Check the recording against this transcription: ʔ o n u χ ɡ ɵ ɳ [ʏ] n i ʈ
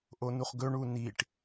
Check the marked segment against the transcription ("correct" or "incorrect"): incorrect